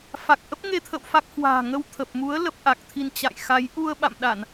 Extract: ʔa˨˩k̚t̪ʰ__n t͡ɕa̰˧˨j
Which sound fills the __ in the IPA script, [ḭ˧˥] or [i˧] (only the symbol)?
i˧